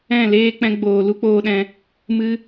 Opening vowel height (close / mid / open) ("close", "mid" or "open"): mid